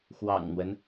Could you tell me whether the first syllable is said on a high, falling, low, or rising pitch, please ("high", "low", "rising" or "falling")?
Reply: low